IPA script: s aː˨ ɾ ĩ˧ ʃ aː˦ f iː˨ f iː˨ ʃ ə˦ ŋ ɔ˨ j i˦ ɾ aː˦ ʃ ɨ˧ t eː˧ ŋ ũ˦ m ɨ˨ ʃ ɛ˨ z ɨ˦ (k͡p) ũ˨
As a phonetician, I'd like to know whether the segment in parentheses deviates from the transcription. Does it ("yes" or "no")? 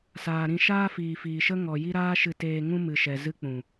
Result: no